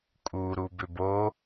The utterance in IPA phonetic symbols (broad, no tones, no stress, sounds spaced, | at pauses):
kʼ u ɾ u b ʏ b o